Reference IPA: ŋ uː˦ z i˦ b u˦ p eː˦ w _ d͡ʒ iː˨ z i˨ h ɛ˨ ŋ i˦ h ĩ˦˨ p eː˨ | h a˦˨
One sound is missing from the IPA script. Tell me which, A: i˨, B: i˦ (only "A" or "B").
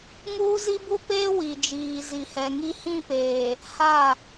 A